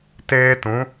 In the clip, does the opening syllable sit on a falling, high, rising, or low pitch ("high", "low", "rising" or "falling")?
high